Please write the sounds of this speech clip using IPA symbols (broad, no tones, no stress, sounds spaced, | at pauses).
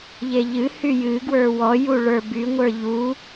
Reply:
ʎ e ʎ ɨ h y j ɨ ɡ w ə˞ w ɔ j u ɭ ə˞ b y ŋʷ ə˞ ʎ u